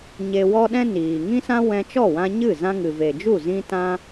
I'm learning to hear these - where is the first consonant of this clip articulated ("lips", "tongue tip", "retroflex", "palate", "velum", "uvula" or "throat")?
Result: palate